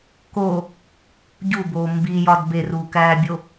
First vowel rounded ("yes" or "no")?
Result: yes